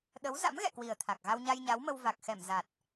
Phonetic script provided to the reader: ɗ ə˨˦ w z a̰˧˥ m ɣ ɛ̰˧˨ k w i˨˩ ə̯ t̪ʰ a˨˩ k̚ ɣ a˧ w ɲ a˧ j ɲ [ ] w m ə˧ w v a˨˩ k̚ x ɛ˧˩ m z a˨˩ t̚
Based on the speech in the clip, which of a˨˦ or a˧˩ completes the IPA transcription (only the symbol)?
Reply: a˨˦